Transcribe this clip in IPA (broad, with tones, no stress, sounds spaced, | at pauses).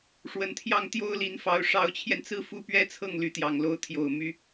ʂ w ə˨˩ n t̪ʰ j ɑ˥˩ ŋ t̪ j o˥ ʊ̯ l i˧˥ n f ɑ˧˥ ʊ̯ ʂ ɑ˧˥ ʊ̯ t͡ɕʰ j ɛ˧ n t͡s ɹ̩˥˩ f u˥ p ɥ ɛ˥ t͡sʰ ɤ˥˩ ŋ l y˧˥ t̪ j ɑ˨˩ ŋ l o˧˥ ʊ̯ t̪ʰ j o˨˩ ʊ̯ m y˥